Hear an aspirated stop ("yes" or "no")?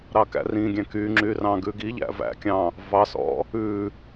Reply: no